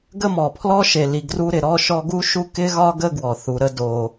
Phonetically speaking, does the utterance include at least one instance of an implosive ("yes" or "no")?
no